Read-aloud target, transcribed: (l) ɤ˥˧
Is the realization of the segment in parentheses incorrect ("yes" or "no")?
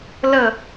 no